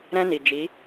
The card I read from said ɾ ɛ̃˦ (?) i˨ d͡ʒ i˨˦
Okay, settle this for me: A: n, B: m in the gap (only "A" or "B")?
A